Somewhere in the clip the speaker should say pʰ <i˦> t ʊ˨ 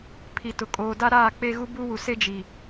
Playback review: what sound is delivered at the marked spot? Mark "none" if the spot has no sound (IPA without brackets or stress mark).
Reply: i˨